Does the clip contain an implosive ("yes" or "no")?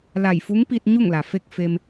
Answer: no